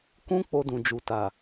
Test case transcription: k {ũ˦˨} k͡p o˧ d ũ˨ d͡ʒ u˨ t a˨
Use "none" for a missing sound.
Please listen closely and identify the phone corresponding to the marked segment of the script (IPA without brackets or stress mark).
ũ˦